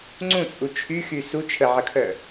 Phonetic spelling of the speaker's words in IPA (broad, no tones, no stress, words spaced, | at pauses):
ŋ͡ǀũt͡sʼu t͡ʃʰyxy su t͡ʃʰəʕəkʰœ